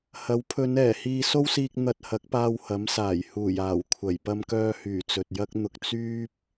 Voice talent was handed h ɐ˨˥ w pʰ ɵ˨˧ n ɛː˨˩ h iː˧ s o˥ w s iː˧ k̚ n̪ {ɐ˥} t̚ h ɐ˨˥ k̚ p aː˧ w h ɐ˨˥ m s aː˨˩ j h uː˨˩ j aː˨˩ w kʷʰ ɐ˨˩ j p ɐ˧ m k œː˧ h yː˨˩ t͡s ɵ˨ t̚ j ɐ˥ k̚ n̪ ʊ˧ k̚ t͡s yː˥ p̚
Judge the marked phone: incorrect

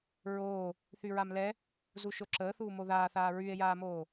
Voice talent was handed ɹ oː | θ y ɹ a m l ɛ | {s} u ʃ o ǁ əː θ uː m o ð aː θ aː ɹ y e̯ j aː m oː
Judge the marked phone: incorrect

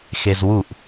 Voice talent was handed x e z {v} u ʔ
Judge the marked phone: incorrect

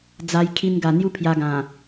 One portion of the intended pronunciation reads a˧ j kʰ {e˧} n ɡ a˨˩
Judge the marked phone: incorrect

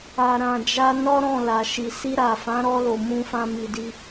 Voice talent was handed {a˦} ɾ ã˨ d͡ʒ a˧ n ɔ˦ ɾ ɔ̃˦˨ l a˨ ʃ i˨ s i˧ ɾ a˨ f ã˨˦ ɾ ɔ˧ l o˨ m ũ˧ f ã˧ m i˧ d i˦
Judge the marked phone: incorrect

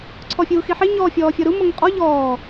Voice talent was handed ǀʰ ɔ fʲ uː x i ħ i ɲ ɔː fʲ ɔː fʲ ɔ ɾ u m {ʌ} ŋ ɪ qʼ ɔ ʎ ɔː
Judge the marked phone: correct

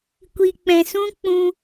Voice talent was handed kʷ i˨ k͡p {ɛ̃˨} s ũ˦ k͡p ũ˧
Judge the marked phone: correct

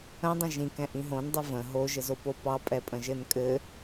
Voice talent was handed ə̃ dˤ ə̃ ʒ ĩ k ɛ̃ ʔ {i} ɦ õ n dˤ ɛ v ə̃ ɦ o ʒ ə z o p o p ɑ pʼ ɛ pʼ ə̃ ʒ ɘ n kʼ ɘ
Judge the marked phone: incorrect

